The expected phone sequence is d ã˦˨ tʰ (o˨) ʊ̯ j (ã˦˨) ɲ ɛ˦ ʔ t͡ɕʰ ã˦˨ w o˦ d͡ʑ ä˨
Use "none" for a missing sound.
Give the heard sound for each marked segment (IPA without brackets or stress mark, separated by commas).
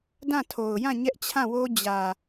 o˨, ã˦˨